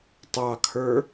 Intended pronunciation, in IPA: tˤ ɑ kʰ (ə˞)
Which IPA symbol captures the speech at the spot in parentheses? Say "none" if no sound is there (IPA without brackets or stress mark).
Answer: ə˞